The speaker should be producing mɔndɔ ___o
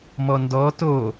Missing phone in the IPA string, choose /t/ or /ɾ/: t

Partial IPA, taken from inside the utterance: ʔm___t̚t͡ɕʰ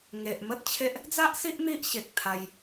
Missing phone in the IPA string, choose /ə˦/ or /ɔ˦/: ə˦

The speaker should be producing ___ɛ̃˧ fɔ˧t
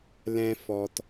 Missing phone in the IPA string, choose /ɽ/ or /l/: l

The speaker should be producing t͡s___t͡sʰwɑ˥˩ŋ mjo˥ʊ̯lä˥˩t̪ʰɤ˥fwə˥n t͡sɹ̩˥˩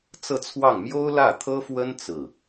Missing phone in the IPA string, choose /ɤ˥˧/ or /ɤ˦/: ɤ˥˧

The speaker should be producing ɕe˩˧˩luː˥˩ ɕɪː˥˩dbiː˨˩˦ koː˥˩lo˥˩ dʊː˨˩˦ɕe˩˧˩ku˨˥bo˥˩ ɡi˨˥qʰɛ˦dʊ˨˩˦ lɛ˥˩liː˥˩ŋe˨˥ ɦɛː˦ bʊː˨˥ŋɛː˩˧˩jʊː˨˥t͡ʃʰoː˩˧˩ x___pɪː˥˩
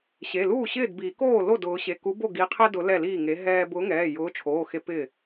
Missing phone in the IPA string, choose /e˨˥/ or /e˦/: e˦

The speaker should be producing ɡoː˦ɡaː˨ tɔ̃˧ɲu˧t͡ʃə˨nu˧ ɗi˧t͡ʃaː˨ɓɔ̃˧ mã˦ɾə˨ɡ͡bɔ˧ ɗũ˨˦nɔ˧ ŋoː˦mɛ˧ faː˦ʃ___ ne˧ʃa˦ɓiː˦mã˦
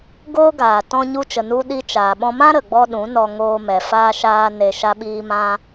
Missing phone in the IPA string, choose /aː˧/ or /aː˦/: aː˦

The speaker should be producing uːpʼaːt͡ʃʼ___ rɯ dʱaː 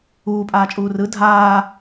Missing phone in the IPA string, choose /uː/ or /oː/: uː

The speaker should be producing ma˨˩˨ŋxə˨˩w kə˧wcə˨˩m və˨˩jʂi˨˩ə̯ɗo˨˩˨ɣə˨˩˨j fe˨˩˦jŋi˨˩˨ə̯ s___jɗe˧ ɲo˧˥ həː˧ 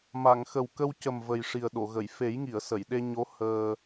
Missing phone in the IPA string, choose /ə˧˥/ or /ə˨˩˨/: ə˨˩˨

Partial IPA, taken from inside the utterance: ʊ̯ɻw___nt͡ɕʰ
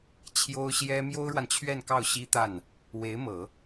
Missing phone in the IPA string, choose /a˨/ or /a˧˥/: a˨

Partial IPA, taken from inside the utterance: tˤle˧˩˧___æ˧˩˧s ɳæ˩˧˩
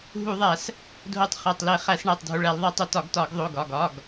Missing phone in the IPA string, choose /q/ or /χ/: χ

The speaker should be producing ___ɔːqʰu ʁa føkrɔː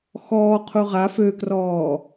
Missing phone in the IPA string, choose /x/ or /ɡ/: x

